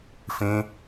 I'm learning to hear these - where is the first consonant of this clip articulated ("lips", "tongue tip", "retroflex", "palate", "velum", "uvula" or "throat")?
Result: lips